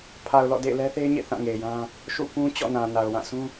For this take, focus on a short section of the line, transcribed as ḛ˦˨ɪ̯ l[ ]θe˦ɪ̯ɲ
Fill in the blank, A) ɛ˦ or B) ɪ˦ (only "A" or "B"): A